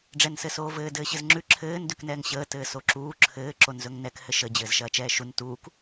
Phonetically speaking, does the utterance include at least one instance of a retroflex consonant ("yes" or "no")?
yes